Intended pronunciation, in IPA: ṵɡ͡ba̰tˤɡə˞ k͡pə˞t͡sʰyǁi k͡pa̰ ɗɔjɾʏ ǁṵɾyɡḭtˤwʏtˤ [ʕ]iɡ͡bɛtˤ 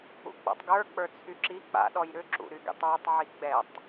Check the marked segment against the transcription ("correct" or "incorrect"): correct